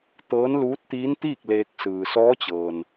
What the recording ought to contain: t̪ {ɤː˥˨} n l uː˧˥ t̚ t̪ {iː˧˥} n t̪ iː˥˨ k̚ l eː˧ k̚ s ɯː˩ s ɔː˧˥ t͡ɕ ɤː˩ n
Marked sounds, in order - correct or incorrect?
incorrect, correct

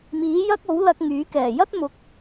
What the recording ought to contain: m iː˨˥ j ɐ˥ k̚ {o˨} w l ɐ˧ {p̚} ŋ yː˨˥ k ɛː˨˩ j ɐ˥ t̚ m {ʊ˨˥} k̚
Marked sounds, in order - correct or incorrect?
incorrect, incorrect, correct

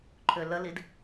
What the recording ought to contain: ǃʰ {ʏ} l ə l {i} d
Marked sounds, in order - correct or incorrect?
correct, correct

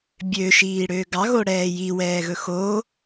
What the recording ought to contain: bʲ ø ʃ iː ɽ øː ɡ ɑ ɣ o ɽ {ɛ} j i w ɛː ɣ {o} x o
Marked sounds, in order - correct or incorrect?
incorrect, incorrect

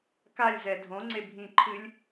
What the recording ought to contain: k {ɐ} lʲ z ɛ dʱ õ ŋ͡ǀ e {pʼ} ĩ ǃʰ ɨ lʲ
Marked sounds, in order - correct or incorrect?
incorrect, incorrect

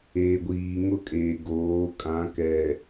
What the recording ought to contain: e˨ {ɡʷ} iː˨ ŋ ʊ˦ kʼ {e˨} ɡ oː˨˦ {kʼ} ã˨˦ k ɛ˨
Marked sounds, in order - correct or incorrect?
correct, correct, correct

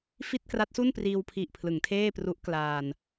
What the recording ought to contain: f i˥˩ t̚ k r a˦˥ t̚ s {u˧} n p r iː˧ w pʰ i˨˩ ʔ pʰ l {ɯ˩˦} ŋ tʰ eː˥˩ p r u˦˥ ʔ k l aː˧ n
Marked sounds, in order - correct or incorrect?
incorrect, correct

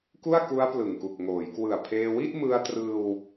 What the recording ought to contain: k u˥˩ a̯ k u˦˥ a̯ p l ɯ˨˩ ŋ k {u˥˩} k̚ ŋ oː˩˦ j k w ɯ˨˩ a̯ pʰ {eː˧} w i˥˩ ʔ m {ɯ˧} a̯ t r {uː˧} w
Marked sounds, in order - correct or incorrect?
incorrect, correct, correct, incorrect

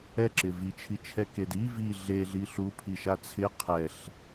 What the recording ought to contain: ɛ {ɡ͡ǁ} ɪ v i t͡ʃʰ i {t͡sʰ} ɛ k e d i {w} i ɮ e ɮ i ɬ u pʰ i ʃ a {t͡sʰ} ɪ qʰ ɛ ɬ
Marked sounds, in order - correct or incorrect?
incorrect, incorrect, incorrect, correct

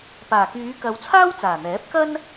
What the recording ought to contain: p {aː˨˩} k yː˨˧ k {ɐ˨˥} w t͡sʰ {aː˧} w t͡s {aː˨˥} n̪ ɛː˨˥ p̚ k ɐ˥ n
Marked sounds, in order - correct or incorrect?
correct, incorrect, incorrect, incorrect

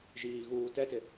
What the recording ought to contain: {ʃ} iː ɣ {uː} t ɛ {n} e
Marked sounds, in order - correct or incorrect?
incorrect, correct, incorrect

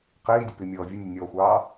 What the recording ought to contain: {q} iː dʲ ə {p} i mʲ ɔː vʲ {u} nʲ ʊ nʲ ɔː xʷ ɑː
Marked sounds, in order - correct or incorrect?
correct, correct, incorrect

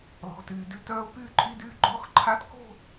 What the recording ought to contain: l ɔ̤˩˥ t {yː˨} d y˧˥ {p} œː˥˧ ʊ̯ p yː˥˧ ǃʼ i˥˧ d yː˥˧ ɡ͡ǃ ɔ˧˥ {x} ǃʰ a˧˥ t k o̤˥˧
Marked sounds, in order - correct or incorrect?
correct, incorrect, correct

